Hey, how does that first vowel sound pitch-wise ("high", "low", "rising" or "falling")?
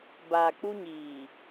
low